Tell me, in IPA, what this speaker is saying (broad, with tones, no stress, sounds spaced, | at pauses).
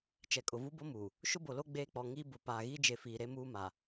t͡ʃ ɛ˨ kʼ ʊ˨ v u˦ b o˦ m uː˨ | ʃ ʊ˦ b o˨ l o˦ ɡ͡b eː˦ k͡p ɔ˨ ŋ iː˦ b ʊ˨ p aː˨ ɣ i˦ d͡ʒ e˨ f iː˨ ɾ e˦ m uː˦ m a˨